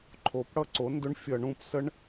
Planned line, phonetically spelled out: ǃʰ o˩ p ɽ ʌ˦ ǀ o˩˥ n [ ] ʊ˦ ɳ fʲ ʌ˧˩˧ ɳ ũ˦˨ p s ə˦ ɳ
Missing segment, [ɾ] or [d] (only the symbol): d